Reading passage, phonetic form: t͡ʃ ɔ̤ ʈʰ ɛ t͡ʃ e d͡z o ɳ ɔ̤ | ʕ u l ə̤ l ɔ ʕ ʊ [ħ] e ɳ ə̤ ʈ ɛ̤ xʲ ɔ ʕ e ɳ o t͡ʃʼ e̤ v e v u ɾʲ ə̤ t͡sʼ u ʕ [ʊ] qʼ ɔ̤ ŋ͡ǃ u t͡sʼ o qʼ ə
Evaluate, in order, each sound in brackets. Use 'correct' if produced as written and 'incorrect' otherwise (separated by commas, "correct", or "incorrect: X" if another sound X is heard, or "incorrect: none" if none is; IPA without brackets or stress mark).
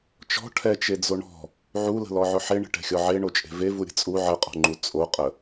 correct, incorrect: ə